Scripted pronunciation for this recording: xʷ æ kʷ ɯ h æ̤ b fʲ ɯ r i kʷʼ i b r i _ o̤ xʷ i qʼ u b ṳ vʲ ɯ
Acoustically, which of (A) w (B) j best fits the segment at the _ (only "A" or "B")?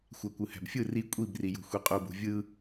B